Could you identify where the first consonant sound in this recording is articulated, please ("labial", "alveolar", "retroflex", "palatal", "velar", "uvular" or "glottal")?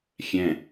velar